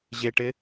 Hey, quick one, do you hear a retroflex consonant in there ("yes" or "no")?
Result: yes